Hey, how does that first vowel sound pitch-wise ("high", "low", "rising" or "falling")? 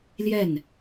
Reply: falling